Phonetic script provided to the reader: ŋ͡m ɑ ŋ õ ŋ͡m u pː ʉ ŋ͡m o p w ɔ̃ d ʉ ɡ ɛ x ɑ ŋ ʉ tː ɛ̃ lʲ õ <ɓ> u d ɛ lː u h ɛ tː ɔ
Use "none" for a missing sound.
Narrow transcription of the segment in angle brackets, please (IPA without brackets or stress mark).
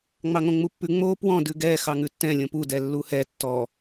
p